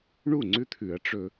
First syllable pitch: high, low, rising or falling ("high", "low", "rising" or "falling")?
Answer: falling